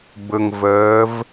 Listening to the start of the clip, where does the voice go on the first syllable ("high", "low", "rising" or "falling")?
low